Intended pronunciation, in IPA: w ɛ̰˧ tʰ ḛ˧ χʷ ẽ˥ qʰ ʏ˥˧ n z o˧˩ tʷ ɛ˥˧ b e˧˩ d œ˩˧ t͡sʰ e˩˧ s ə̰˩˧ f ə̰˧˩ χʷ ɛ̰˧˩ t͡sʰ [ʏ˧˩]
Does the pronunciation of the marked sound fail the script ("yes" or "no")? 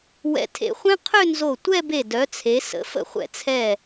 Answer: yes